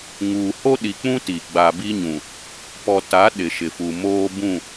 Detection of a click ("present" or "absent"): absent